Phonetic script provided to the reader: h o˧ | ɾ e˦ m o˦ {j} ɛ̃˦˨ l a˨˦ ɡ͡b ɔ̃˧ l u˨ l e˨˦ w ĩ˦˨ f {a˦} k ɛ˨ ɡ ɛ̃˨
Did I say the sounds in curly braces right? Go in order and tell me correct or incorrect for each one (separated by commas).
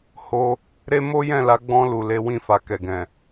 correct, incorrect